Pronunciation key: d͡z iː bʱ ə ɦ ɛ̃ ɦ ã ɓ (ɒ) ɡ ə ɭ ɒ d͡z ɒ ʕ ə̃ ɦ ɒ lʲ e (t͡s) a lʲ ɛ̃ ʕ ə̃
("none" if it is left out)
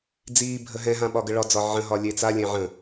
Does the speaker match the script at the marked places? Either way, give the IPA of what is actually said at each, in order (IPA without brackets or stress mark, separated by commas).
ɒ, t͡s